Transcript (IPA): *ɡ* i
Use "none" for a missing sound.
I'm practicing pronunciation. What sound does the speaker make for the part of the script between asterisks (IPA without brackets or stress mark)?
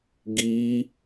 ɡ